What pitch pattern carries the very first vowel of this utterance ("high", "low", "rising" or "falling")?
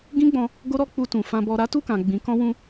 high